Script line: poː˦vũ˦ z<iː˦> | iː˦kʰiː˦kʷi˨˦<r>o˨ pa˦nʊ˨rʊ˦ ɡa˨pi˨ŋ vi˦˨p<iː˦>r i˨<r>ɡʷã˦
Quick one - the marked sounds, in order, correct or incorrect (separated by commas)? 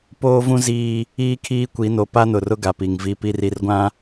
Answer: correct, incorrect, incorrect, correct